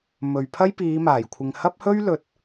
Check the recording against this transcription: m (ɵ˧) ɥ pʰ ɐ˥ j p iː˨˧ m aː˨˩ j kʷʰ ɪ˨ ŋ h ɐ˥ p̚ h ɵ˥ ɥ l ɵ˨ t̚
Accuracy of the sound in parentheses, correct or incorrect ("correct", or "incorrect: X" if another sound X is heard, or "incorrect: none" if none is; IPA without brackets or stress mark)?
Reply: incorrect: ɵ˨